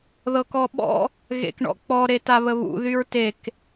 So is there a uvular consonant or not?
no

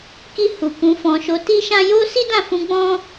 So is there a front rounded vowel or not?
no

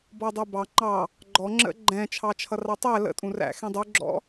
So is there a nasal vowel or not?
yes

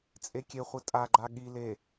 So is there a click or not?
yes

